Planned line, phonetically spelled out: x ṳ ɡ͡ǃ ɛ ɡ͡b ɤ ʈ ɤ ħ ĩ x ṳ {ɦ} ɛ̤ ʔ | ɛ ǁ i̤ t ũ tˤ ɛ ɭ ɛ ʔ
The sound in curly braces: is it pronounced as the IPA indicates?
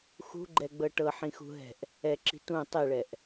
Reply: yes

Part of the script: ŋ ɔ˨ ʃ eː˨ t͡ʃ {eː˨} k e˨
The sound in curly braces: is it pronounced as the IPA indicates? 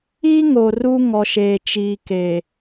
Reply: no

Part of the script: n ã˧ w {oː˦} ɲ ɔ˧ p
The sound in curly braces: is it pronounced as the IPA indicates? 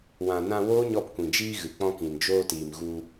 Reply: yes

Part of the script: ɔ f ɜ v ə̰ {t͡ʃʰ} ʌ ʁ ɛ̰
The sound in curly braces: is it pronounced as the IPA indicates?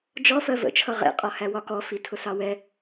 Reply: yes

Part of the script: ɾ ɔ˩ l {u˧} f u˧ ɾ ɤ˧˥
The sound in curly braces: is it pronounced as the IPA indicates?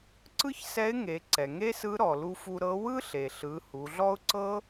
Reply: yes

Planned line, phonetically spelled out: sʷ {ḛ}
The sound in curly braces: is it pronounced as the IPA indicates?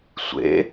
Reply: yes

